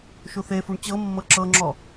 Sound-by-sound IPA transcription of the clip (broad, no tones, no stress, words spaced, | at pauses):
ʃuθefuɳ t͡ɕɤmːɤ ǁɤŋ͡ǁɔ